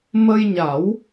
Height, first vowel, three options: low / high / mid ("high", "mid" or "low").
mid